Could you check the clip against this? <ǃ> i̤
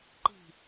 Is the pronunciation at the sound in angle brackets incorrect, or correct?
correct